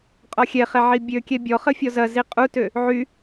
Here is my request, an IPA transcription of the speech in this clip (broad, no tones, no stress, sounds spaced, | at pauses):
qʼ ɔ xʲ ɛ χ ɛ ʕ i bʲ ø kʲ ɛ bʲ ɔ χ ə fʲ ɔ z ɐ z i qʼ u t ø | ʕ y